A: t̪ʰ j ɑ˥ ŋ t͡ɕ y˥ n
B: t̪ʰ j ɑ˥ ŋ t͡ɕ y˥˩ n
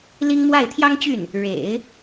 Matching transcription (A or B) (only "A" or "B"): B